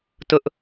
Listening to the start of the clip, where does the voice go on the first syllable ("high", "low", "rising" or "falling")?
high